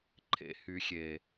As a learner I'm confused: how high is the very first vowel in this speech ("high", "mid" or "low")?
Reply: mid